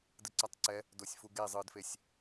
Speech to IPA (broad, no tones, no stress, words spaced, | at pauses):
dɯǀatˤǀɛ | dosʲfuɡe zˤɯdfesʲ